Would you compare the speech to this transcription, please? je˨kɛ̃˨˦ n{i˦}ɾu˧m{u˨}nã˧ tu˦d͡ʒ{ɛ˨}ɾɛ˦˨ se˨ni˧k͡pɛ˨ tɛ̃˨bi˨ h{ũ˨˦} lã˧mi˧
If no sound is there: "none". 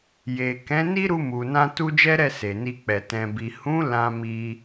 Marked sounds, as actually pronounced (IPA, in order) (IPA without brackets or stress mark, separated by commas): i˦, u˨, ɛ˦, ũ˨˦